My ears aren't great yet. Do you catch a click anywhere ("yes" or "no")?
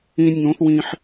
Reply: no